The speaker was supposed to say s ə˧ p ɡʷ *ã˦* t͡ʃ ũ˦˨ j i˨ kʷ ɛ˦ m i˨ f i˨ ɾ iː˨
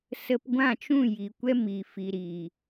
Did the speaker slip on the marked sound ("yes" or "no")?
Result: yes